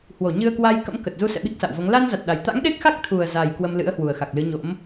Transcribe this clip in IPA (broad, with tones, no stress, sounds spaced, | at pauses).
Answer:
h w o˧˩ ɲ ɨ˧ ə̯ k w a˧ j k ə̰˧˥ m k ə˨˩ t̚ z u˧ s ɛ̰˧˨ ɓ i˦˥ k̚ s a̰˧˨ w v o˨˦ ŋ l a˧ n z a˨˩ t̚ ɗ a˨˩ j t̪ a̰˧˥ ŋ ɗ e˦˥ k̚ x a˦˥ k̚ t̪ʰ u˨˩ ə̯ z a˨˩ j k w ə˧ m l ɨ̰˧˥ ə̯ h w u˨˩ ə̯ x a˨˩ k̚ l ɨ˨˦ ɲ o̰˧˥ m